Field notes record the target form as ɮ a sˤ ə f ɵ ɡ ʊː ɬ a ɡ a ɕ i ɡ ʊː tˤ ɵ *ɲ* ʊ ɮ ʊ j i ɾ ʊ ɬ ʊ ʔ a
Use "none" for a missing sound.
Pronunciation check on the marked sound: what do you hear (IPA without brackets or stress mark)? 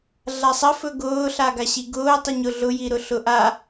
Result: ɲ